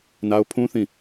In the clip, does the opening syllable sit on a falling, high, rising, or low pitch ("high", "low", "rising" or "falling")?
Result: high